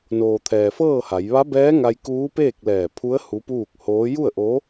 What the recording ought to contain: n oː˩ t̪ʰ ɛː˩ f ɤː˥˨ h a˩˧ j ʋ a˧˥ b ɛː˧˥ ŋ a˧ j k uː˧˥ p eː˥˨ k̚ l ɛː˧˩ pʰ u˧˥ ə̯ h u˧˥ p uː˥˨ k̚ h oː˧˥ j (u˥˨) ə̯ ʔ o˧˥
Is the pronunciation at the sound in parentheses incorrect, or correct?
correct